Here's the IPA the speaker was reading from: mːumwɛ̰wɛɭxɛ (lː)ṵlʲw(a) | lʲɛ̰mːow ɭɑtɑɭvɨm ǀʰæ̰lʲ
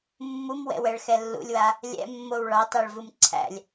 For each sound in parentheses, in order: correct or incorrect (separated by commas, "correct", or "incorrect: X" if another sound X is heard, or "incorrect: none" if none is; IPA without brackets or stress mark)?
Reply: correct, correct